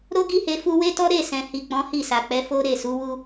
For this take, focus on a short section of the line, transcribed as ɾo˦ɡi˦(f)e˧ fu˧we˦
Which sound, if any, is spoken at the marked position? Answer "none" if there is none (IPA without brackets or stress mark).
h